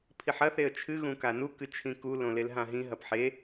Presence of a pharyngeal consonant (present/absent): present